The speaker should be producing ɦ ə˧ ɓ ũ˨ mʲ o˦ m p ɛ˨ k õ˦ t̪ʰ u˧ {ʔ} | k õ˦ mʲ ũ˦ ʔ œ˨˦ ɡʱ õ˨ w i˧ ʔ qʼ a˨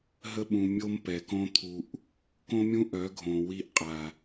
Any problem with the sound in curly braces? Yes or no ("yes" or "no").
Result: no